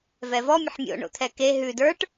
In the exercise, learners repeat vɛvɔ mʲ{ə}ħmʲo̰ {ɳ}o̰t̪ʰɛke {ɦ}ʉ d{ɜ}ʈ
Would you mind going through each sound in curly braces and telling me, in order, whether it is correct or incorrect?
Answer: correct, correct, correct, incorrect: ə˞

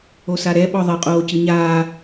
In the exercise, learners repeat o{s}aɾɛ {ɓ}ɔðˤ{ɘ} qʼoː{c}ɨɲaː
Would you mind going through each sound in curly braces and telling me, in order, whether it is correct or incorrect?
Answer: correct, correct, correct, correct

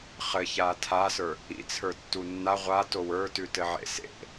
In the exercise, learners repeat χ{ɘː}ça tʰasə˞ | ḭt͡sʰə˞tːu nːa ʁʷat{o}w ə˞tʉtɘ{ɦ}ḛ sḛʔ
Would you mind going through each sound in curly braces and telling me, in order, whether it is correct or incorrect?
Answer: incorrect: ɘ, correct, incorrect: ʕ

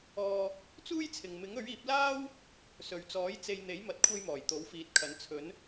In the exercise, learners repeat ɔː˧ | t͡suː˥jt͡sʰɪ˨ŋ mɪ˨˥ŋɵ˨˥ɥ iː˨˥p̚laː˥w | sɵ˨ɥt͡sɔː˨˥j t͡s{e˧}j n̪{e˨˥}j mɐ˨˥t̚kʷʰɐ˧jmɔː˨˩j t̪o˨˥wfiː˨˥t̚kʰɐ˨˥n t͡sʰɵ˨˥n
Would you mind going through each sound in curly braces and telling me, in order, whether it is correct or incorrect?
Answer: correct, correct

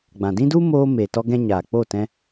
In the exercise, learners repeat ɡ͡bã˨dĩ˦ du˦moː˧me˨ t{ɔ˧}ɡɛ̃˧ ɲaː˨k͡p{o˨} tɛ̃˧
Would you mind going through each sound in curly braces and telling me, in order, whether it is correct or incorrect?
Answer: correct, incorrect: o˦˨

